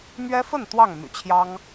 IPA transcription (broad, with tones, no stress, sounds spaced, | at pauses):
m ɥ ɛ˦ f ə˥˨ n t̪ w ɑ˥˨ ŋ m y̰˨˩ t͡ɕʰ j ɑ˦ ŋ